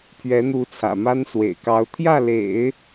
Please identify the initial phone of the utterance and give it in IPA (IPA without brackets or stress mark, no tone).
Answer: pʰ